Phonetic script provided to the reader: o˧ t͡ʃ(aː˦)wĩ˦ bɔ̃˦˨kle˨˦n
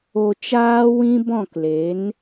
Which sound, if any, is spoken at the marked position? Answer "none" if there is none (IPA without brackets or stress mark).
aː˦